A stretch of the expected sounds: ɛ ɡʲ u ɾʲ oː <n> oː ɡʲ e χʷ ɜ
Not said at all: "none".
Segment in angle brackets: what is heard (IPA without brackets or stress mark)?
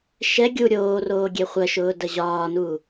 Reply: r